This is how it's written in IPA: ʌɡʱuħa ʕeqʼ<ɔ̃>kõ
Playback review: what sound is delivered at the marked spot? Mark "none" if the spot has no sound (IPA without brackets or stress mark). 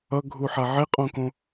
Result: õ